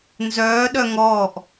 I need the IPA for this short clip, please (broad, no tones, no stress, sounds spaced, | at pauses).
n z œː ɗ œ ŋ ɔː ʔ